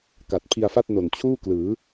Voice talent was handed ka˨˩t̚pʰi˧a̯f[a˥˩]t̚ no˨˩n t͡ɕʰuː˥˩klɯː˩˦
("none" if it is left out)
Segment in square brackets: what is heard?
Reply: a˥˩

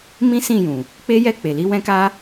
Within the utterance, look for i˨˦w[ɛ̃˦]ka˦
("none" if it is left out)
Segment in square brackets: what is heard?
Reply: ɛ̃˦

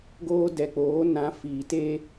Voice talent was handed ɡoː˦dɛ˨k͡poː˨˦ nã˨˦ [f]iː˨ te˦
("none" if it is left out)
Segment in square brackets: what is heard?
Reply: f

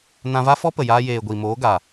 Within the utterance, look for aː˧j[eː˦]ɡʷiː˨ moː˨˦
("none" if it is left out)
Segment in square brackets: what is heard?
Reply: eː˨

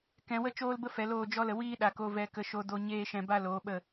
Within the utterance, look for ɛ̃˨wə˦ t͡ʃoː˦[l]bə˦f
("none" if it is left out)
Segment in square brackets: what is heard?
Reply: l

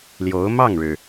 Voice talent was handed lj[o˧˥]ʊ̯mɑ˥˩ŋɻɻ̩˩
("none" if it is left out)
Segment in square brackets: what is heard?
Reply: o˧˥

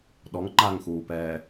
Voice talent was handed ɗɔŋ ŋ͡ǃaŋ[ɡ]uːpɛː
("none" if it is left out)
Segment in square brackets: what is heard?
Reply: x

